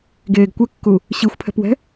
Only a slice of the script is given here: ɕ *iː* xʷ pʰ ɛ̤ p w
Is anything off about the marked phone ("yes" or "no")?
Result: yes